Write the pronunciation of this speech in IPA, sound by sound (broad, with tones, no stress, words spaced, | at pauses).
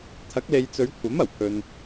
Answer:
t̪ʰɐ˨˥k̚le˨jt͡sɵ˨˧ɥkʷʰɐ˨˥m ɐ˨˩wpʰɵ˨n